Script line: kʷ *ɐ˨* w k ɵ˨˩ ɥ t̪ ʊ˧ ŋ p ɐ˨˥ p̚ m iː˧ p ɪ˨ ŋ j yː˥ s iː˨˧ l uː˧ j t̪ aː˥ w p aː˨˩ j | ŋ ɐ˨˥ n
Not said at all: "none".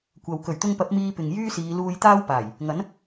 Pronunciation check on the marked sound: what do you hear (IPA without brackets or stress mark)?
ɐ˨